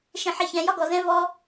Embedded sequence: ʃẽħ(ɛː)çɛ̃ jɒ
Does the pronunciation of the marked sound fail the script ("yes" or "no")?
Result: yes